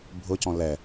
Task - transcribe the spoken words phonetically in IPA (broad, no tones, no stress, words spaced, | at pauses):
bʱʊcɔ̃ lɛ